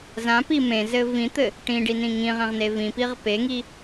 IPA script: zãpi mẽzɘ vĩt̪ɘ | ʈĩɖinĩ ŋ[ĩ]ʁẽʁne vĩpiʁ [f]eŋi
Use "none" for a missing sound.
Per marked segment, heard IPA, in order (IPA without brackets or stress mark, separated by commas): ĩ, p